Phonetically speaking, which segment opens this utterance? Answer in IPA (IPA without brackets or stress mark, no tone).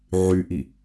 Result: ʕ